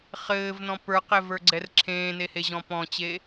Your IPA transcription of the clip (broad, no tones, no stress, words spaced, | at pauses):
χɘːvnɔ̃ pə˞qɛvə˞ɡ͡ǀɛr ǁʰẽːneheʑɔ̃ pɔ̃t͡ɕe